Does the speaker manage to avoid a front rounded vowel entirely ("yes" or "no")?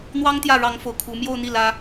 yes